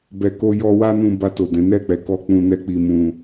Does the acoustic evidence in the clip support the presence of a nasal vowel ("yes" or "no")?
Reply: yes